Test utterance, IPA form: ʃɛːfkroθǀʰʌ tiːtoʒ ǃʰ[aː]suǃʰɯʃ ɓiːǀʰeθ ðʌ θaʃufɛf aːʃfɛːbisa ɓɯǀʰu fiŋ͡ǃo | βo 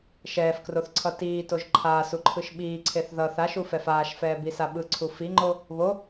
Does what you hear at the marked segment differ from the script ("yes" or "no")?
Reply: no